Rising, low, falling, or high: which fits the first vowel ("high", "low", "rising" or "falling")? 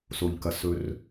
low